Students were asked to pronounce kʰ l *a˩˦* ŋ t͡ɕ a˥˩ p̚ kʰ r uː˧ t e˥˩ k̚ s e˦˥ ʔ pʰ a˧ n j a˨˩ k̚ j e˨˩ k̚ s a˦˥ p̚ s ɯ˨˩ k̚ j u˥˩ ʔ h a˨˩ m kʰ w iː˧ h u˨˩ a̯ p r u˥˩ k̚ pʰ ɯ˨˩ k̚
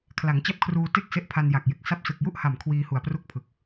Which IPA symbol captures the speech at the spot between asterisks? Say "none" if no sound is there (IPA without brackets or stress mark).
a˩˦